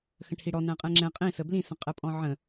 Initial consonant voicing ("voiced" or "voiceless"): voiceless